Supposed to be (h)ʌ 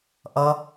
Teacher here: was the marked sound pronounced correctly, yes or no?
no